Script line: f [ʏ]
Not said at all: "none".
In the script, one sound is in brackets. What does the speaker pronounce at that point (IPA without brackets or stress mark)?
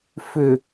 ʏ